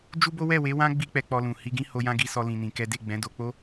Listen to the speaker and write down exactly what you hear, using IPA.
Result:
d͡ʒ u˦ b o˦ w ɛ˦˨ w e˨˦ w ã˦ ɡ͡b i˦ k͡p ɛ˧ k͡p ɔ˧ l ũ˨ h i˧ ɡ ĩ˦ h o˧ j ã˦ ɡ i˧ s ɔ˧ l ĩ˧ n ĩ˧ k ɛ˦ d e˦˨ ɡ͡b ɛ̃˨˦ d o˧ k͡p o˦

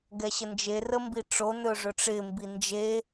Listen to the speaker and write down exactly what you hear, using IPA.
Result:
ɡ ɛ ɕ ə n d͡ʒ e r ə m b i ʈ͡ʂ o n ɵ ʐ ɵ ʈ͡ʂ ɪ m b i n d͡ʒ e

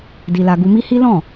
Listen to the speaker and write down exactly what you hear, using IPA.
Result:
d i˧ l a˧ ɡ u˧ m i˦ h i˦ l ɔ̃˦˨

